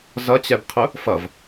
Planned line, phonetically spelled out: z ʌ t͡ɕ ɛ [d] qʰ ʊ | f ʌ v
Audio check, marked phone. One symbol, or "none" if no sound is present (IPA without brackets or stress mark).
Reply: b